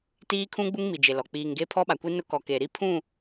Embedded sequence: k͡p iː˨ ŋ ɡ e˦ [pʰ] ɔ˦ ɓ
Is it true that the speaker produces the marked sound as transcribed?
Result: yes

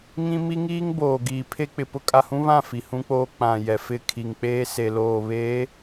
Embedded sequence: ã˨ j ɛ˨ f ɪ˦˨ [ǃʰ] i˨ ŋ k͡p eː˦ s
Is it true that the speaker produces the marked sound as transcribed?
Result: no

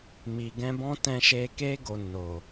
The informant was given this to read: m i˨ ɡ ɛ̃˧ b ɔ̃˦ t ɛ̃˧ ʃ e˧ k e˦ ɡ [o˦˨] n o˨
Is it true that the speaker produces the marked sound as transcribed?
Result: no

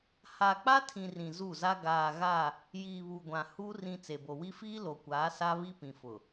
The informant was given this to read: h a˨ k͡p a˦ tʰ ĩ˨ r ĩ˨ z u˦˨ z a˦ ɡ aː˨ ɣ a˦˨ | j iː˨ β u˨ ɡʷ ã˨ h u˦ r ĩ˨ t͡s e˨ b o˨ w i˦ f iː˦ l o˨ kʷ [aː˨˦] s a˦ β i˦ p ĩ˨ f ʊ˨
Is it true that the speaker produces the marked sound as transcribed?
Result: yes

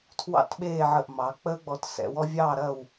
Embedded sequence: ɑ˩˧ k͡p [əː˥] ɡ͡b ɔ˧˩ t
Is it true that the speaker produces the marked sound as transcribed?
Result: yes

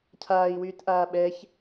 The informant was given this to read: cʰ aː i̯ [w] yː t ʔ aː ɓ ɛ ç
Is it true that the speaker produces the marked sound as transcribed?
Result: yes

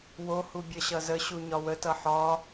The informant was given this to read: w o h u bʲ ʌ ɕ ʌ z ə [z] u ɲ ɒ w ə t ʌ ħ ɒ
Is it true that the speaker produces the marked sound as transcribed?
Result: no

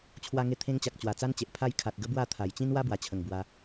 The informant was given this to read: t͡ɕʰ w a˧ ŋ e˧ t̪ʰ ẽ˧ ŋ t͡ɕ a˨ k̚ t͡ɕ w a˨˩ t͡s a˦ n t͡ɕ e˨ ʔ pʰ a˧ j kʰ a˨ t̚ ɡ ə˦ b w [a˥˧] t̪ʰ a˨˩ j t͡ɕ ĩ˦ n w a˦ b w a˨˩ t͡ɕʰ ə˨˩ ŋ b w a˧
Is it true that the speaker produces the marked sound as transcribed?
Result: yes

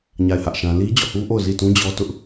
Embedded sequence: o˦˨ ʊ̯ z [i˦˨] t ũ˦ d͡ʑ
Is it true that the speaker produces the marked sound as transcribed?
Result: yes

